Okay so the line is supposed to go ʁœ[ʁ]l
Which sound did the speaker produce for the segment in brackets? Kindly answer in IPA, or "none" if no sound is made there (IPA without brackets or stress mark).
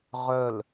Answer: none